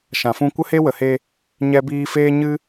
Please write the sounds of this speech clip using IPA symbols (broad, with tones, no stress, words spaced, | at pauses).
ʃã˨fũ˦ kʷə˦he˦wə˨he˧ | ɲɛ˦biː˦ feː˦ɲɨ˦